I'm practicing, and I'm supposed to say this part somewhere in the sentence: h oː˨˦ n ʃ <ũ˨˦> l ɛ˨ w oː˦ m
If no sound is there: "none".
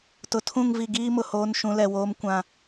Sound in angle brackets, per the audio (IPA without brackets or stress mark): ũ˨˦